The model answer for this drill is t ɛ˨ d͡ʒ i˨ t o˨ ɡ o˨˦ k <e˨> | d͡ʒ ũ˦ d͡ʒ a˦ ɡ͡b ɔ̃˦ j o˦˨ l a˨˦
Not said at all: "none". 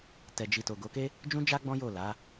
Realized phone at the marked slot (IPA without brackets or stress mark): e˦